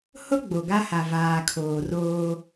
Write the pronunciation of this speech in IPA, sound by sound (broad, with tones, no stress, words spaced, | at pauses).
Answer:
hʊ˦ ɡ͡bo˨ɡa˦ha˨ vaː˨ kʰoː˨roː˦